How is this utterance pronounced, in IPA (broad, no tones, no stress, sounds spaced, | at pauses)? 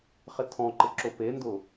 χ ɪ tʰ ɔ̃ ǃ ɪ ǁ ʊ p e n d ʊ